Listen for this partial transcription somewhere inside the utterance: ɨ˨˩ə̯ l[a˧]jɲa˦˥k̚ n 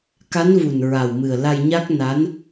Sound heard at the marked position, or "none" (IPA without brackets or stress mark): a˧